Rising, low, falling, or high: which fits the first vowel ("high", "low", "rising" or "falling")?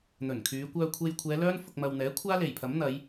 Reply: low